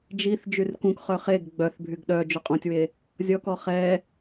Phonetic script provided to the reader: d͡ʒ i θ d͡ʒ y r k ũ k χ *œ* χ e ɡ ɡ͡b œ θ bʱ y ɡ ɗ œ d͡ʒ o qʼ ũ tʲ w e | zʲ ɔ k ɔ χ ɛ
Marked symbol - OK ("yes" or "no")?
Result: yes